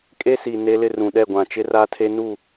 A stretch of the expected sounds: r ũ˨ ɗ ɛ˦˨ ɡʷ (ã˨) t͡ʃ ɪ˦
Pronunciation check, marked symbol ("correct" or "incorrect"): correct